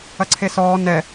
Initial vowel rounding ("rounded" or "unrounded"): unrounded